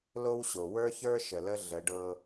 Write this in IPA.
lo˥wɕo˩ wə˞˥çə˞˥ ʃə˩lə˥ ɮə˩˧ɖɤ˧

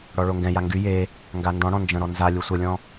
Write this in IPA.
ɽɔɭoŋɡɛ̃ja ŋɡy je | ŋɡandɔ̃ɽɔ̃ nd͡ʒə̃ɾɔ nzalʲu sʷəlʲɔ̃

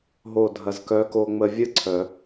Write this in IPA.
ɦo˨˩ dʱɐ˨˩zkœ˨˥ko˧ŋ͡mə˧ vʲɯ˥ǀʰœ˨˩˦

